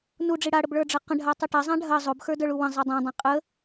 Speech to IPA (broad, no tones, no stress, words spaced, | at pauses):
nuɖ͡ʐi ɽaɽəbɭə˞ɖ͡ʐɐ qə̃ɖʱatˤe ʈazˤã ɖʱɐ zˤobxə˞də˞ɭu wə̃zˤe dˤãdˤã qʼə